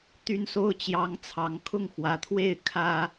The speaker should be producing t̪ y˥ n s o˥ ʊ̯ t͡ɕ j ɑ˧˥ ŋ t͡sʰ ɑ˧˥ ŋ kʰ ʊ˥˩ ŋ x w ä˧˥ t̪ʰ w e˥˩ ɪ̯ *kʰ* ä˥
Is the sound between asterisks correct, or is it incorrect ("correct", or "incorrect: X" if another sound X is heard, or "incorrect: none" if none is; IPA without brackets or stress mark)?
correct